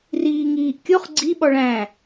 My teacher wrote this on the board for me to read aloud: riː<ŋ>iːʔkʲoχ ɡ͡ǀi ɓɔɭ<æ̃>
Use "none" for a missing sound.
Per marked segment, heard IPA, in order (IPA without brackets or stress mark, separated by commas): ŋ, æ̃